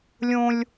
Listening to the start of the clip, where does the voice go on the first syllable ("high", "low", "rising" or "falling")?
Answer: high